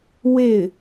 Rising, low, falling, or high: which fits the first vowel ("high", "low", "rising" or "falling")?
falling